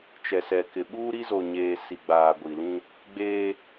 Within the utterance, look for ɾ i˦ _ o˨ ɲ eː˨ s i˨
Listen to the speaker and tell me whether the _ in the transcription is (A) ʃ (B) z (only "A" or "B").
B